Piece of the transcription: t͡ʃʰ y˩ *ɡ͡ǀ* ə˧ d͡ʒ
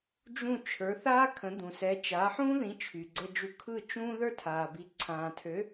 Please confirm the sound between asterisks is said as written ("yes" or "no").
yes